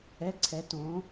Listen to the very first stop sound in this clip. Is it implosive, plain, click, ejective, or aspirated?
click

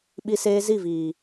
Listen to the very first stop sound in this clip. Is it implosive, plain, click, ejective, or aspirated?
implosive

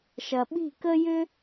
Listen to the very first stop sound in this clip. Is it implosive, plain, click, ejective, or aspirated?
implosive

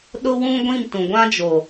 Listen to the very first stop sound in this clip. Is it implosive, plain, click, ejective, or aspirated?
implosive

